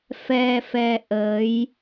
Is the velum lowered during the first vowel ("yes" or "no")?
no